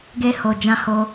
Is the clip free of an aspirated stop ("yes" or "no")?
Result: yes